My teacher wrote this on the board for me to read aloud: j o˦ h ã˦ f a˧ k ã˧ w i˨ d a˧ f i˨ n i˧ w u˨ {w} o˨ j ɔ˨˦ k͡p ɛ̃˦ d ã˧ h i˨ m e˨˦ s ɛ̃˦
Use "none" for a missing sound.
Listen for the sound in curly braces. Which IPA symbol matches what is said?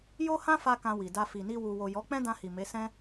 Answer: w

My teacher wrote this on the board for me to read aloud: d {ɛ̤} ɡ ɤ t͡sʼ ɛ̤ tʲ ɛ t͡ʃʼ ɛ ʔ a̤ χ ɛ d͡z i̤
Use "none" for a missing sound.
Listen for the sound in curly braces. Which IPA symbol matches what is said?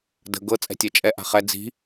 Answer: ə̤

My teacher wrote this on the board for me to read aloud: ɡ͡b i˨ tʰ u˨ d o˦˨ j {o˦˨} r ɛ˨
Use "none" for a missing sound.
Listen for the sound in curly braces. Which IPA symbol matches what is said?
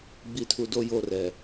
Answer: o˦˨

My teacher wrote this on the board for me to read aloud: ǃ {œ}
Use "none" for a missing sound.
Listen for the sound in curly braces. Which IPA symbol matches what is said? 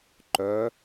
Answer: œ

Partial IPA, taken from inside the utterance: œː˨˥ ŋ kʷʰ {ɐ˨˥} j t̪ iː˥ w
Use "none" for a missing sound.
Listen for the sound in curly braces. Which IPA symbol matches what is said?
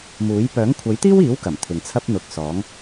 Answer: ɐ˨˥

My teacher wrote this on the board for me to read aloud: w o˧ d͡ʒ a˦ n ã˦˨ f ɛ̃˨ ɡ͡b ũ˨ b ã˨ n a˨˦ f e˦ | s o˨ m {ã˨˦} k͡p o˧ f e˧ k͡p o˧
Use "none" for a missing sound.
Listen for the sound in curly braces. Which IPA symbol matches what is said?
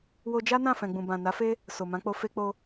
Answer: ã˨˦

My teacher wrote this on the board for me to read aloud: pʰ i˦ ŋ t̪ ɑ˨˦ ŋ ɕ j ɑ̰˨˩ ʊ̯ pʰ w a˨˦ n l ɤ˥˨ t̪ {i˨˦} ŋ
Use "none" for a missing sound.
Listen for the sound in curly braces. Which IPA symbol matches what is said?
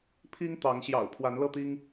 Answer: i˦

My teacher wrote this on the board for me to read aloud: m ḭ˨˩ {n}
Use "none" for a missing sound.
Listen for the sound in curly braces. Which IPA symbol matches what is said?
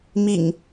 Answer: ŋ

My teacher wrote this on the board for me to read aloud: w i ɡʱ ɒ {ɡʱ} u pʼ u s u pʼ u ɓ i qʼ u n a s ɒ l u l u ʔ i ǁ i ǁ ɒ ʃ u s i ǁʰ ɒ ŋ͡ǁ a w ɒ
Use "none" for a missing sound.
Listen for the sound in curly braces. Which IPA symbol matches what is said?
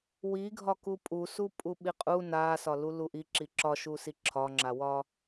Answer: k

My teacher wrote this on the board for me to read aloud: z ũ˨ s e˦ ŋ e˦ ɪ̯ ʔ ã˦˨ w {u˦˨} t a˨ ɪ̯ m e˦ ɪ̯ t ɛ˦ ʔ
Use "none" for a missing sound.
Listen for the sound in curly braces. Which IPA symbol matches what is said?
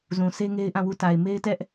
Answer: u˦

